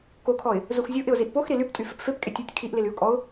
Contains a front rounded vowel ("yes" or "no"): yes